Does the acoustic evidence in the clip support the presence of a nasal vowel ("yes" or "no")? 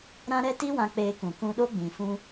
yes